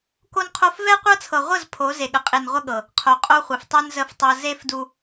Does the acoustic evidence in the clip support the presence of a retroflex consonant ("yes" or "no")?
no